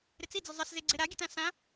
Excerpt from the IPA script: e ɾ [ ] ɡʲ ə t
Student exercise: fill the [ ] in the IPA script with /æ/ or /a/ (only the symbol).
a